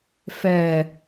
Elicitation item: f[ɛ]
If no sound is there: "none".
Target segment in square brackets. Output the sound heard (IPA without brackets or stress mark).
ɛ